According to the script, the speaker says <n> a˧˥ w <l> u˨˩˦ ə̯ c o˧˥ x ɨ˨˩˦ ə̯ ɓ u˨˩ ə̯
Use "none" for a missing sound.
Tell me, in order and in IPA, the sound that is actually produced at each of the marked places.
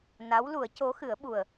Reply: n, l

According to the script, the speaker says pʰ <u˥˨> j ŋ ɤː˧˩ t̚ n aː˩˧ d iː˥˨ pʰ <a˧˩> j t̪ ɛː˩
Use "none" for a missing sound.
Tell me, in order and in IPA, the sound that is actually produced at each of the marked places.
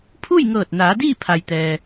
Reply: u˥˨, a˩

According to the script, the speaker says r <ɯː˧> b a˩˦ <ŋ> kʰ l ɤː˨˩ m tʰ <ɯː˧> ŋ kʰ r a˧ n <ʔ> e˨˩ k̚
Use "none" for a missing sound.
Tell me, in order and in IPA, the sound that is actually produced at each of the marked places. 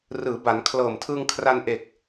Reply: ɯː˩˦, n, ɯː˧, ʔ

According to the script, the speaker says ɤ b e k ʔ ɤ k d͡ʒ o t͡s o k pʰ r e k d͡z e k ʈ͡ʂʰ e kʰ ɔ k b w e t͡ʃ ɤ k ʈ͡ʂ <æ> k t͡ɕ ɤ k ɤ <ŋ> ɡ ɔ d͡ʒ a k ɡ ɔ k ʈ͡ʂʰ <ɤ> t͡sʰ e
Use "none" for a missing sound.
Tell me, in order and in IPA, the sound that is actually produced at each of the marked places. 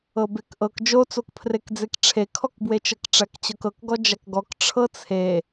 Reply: æ, k, ɤ

